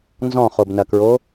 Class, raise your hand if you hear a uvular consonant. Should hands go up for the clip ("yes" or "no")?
yes